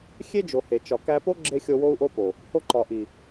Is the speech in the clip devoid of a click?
no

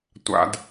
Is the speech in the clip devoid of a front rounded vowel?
yes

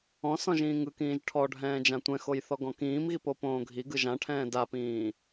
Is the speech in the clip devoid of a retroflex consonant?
no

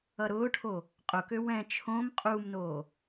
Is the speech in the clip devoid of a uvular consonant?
no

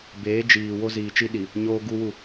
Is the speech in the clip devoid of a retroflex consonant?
yes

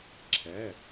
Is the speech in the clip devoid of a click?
no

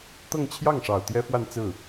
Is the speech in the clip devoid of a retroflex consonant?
no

